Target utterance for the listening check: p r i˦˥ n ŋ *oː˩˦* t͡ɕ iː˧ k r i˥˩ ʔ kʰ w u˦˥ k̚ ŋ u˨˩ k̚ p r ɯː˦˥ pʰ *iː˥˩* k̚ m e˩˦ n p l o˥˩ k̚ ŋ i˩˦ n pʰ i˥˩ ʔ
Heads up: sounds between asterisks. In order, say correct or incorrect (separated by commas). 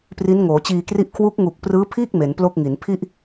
correct, correct